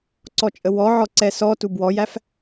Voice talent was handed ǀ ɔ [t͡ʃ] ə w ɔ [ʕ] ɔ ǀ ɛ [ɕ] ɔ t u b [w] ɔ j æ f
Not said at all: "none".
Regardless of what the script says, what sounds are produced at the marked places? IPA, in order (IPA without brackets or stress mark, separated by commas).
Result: t͡ʃʼ, ʕ, s, w